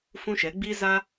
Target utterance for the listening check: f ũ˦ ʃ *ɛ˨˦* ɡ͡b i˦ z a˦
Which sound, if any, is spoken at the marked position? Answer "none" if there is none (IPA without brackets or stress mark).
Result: ɛ˨˦